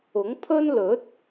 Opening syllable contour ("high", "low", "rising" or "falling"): rising